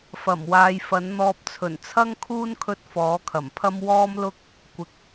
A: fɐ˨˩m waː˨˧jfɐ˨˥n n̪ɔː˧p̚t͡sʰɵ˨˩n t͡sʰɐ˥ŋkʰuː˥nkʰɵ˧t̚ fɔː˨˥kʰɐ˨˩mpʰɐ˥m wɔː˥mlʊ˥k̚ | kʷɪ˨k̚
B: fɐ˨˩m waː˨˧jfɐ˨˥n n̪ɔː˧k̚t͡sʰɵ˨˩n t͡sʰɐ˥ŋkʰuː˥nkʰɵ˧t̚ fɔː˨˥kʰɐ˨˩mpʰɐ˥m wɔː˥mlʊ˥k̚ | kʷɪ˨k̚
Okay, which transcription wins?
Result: A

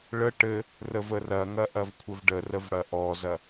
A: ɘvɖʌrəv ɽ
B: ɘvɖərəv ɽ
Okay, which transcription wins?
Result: B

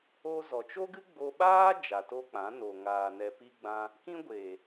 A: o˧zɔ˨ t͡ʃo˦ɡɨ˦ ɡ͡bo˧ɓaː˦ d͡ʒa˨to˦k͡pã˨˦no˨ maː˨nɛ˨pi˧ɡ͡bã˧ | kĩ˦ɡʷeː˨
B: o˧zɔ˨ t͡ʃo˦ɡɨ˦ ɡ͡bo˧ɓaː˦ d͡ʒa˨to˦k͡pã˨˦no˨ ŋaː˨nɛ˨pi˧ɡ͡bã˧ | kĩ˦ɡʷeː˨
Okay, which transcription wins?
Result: B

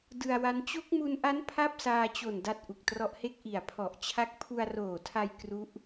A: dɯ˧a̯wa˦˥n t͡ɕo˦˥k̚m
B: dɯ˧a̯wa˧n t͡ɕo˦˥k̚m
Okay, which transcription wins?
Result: A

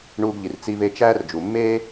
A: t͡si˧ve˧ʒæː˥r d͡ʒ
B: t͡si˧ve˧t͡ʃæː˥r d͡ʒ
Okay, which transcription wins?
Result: B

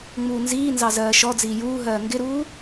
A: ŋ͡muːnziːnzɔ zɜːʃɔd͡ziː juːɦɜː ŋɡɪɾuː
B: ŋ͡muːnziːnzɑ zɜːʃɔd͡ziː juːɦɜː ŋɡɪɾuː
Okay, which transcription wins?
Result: B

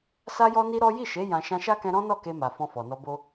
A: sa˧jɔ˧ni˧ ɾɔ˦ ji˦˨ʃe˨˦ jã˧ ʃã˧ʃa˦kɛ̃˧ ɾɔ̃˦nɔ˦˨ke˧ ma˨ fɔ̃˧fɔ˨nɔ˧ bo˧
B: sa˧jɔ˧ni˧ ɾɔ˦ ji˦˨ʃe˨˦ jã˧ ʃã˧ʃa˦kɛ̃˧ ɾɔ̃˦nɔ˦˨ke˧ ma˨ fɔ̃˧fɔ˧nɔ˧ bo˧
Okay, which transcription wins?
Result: A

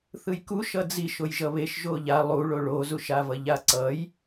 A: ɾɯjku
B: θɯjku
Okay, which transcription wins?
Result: B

